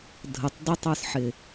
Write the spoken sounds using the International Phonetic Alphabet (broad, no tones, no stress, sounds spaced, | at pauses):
dʱ ə tˤ d ʊ tˤ ə˞ s ħ ɪ